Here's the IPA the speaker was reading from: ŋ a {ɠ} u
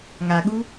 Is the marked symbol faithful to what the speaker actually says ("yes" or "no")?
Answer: yes